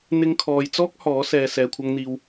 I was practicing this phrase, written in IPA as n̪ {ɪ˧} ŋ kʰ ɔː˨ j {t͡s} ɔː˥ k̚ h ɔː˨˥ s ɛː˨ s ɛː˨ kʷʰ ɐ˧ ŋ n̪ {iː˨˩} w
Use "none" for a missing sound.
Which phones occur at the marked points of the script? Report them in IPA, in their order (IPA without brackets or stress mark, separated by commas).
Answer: ɪ˧, t͡s, iː˧